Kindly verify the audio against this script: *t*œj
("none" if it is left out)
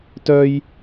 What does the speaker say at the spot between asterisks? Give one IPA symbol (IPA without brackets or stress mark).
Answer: t